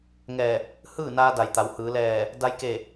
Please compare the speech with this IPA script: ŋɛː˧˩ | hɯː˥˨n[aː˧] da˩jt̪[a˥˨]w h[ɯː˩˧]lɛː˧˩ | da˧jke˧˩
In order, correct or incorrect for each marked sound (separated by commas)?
correct, incorrect, correct